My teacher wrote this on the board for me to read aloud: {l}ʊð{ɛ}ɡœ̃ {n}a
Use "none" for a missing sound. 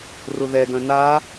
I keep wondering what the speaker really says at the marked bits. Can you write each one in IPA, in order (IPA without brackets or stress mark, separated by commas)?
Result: r, ɛ, n